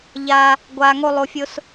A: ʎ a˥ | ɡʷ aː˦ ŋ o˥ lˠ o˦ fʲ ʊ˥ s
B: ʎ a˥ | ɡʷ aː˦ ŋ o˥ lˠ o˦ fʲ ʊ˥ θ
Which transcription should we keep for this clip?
A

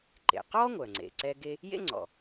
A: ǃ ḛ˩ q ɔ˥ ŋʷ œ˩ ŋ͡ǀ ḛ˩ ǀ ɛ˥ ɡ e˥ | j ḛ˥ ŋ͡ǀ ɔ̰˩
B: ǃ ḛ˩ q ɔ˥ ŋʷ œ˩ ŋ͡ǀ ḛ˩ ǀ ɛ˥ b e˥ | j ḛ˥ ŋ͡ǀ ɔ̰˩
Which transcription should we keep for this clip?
A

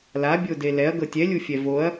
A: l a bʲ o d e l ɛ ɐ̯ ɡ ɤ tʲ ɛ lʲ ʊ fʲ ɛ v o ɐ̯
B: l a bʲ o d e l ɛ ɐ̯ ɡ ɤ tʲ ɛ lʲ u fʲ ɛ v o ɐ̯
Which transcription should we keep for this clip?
B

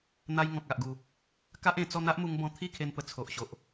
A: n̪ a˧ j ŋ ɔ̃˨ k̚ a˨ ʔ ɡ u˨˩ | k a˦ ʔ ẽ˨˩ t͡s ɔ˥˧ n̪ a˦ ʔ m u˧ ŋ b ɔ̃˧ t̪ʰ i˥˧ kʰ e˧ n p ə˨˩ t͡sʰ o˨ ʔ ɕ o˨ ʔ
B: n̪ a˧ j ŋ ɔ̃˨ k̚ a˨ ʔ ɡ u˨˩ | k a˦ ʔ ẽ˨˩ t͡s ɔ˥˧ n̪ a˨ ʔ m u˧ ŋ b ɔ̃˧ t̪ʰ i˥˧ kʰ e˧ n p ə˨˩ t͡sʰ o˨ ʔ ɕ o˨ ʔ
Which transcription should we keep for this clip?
A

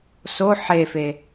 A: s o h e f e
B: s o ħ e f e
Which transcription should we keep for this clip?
B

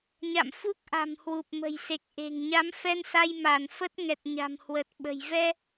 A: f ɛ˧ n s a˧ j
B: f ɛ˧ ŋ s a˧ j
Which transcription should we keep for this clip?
A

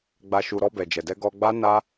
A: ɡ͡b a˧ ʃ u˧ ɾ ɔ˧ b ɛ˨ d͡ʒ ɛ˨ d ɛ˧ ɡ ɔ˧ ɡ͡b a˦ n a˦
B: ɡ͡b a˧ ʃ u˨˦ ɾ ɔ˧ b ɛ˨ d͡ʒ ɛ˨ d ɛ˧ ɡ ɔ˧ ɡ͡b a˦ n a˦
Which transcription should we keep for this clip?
A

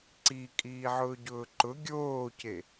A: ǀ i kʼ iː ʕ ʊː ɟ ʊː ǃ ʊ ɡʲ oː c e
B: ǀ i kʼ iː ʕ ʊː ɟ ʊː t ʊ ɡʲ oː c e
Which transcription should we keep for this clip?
A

